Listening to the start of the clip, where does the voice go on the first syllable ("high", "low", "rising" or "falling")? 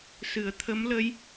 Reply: low